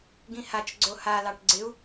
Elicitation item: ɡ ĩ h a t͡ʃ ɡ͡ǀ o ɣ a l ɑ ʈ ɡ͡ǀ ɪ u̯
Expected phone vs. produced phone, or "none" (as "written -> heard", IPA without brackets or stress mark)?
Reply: ɣ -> h